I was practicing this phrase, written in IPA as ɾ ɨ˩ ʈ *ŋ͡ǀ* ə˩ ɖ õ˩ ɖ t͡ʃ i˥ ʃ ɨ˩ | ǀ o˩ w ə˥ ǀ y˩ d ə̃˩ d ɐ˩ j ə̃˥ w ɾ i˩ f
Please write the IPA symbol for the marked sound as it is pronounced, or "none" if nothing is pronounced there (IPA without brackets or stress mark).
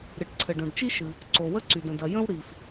ǀʰ